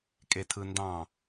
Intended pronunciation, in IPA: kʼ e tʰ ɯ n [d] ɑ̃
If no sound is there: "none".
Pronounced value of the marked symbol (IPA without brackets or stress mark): d